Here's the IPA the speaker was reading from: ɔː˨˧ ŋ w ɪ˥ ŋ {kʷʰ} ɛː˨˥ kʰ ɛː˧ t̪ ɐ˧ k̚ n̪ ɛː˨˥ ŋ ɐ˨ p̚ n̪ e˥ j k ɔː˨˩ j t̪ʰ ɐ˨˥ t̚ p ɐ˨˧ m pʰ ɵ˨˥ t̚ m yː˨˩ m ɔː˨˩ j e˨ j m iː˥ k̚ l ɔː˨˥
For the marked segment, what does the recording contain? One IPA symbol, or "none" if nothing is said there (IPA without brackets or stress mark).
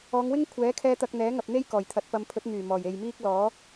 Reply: kʷʰ